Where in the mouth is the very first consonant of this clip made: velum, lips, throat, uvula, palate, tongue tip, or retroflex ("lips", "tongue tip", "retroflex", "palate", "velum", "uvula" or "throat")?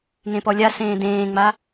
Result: velum